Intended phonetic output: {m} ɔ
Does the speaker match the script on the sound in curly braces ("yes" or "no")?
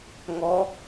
no